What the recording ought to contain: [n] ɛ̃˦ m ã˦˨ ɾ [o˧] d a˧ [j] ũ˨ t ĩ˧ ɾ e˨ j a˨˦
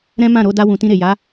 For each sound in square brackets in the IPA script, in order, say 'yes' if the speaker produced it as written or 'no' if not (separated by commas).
no, yes, no